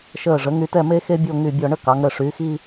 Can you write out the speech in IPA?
ʃ əː˧˩ ʐ ə˩˧ ŋ y˧ t ɛ˥˧ m e˥ x e˥ bʲ o˥˧ ŋ y˧˩ bʲ ɔ˧˩ ɳ ə˥ k ɑ˩˧ ŋ ɾ ə˧˩ ʂ yː˩˧ x i˥˧

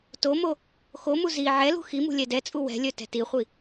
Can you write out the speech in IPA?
t o m o | x o m u z i ʕ ɛ l ṳ x i m ṳ lʲ ɛ d ɛ t͡sʼ u w ɛ̤ lʲ œ t ɛ̤ t i χʷ i

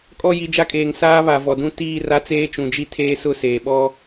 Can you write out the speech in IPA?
kʼ ɔ˦˨ j i˨ d͡ʒ a˦ kʼ eː˨ ŋ s aː˦ β a˨ v ɔ˨ d ũ˦ t iː˦˨ r a˦ t͡s eː˦ t͡ʃ ũ˨ d͡ʒ i˦ tʰ eː˦ s ʊ˦˨ s eː˨ ɓ ɔ˦

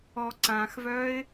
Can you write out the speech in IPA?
ɔ ǀ ã x v œ ɪ̯

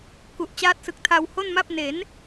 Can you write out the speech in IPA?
k u˨˩ ʔ t͡ɕ aː˦˥ t̚ s ɯ˨˩ k̚ tʰ a˧ w h o˥˩ n m a˥˩ p̚ n e˩˦ n

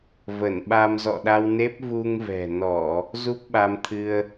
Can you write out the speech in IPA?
v ə˧˩ n ɓ a˧ m z ɔ̰˧˨ ɗ a˧ w n e˦˥ p̚ v u˧ ŋ v ɛ̤˨˩ n ɔ˧˩˨ | z u˦˥ p̚ ɓ a˧ m t̪ʰ ɨ˧ ə̯

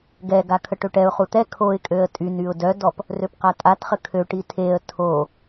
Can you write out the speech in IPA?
ɡ ɛ ɡ a kʰ ə ʈ ø ʈ ɛ ʊ̯ χ u t̪ ɛ kʰ o ɪ̯ kʼ ø ə̯ tʼ y n y ʊ̯ d œ d ɔ p | r ø p q a tʼ a t χ ə kʰ ø ʈ i tʰ e ə̯ tʰ o

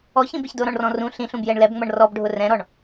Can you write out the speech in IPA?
ɔ ç ĩ b ɪ ç d ʊ ɾ ɔ̃ ɳ r ɔ̃ r ũ ɬ ĩ ɬ ũ b j ɛ ɳ l ɛ b ŋ͡m ʌ ɳ r ɔ b ɖʱ ʊ r ɛ̃ ɾ ɔ ɳ

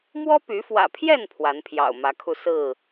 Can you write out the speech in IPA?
m w ɔ˦ p y˨˦ f w ä̰˨˩ pʰ j ɛ˥˨ n pʰ w a˨˦ n pʰ j ɑ̰˨˩ ʊ̯ m ä˨˦ kʰ u˧ s ɹ̩˥˨

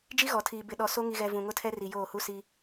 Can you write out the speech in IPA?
d͡ʒ i˦ ɣ ɔ˨ tʰ iː˨ b ɪ˨ ɗ ɔ˨ s o˦ ŋ i˨ ɣ ɛ˨ v ũ˨ ŋ ʊ˦ tʰ ɛ˦ r i˨ j oː˦˨ h u˦ s i˦

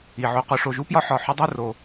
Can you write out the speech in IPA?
i˨ ʕ o˧ q o˨ ʂ o˨ ʒ u˦ p j ɒ˧ ħ ɒ˨ ħ u˧ dˤ u˦˨ r o˨

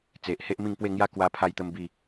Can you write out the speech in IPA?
t͡s e˨ ʔ h e˦ ʔ m ĩ˥˧ ŋ p w e˥˧ ŋ j a˦ k w a˧ pʰ a˧ j t̪ ə˧ m b i˥˧

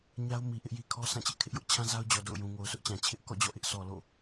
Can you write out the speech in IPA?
ɲ a˦ ʊ̯ m i˨ ʔ ɪ˦ ʔ j i˨ kʰ ɔ˦ sʰ ã˦˨ t͡ɕ ɪ˦ ʔ kʰ ɪ˦ ʔ j ʊ˦ ʔ t͡ɕʰ ã˦ z a˦ ʊ̯ d͡ʑ ɔ˨ d o̰˦˨ ʊ̯ j ũ˨ ŋ o˨ ʊ̯ sʰ ʊ˦ ʔ t͡ɕ ã˨ t͡ɕʰ ɪ˦ ʔ k ɔ̰˦˨ d͡ʑ ɔ̰˦˨ ʔ ɪ˦ ʔ sʰ ɔ˨ l o̰˦˨

